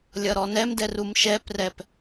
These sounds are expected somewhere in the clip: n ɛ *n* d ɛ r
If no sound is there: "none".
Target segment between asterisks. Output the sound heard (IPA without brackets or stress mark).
m